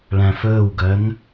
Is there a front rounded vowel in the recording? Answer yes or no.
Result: yes